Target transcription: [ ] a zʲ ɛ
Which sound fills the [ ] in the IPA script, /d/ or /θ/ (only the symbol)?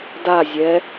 d